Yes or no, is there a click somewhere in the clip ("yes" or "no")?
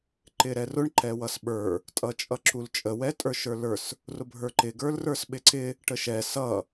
yes